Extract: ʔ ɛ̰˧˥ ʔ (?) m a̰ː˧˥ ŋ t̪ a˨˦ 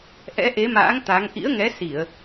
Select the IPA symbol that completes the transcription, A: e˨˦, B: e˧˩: A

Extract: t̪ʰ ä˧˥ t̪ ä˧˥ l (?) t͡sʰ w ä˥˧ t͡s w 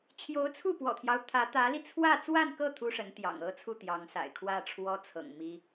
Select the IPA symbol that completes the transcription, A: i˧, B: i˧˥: A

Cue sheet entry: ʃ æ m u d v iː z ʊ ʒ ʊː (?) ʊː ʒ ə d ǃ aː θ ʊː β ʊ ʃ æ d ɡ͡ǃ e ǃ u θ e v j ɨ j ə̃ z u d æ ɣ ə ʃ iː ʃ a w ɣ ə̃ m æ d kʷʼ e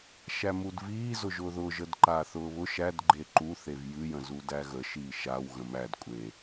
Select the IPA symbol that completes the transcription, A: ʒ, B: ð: B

